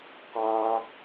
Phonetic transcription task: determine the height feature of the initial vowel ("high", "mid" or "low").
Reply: low